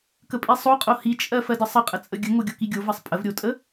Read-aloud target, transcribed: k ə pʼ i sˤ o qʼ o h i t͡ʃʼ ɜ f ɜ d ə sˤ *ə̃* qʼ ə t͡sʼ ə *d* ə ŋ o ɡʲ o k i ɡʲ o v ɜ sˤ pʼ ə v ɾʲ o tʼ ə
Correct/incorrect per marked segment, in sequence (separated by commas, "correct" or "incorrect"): incorrect, incorrect